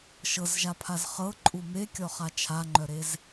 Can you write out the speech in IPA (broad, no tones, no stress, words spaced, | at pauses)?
ʃɤzʒapʰaz χɤǃʼu mekʲɔχa t͡ʃʰaŋ͡ǃœɾez